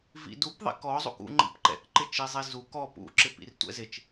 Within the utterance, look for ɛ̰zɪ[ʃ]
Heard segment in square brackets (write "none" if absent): t͡ʃ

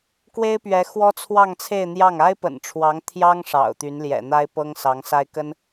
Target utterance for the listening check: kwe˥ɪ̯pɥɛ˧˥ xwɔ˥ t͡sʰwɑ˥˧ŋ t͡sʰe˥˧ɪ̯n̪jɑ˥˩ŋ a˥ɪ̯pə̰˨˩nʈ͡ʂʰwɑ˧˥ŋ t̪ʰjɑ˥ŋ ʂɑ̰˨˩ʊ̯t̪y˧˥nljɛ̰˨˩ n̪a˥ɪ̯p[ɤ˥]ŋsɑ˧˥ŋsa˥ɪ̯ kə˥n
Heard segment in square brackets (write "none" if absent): ɤ˥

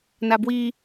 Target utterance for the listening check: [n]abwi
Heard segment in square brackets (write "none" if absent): n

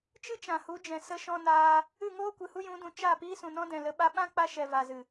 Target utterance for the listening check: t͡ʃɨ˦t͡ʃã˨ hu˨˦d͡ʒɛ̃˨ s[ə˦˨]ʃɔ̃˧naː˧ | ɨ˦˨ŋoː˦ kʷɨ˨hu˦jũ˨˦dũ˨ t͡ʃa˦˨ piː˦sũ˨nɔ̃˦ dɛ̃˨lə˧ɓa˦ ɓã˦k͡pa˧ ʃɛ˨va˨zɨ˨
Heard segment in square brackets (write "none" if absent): ə˧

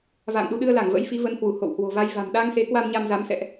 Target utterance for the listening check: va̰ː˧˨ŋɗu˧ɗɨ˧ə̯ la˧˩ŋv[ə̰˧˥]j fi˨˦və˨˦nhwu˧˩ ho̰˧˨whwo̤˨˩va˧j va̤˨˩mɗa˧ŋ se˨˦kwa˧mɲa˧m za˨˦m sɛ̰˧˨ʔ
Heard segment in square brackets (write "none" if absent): ə̰˧˥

